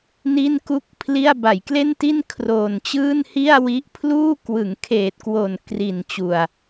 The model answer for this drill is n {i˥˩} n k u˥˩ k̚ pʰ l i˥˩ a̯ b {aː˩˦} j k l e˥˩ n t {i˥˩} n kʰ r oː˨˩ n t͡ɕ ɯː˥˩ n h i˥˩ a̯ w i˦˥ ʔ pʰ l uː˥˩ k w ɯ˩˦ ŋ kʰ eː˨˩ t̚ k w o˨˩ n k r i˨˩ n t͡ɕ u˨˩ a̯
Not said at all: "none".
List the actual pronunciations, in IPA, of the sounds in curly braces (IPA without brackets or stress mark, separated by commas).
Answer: i˥˩, a˩˦, i˥˩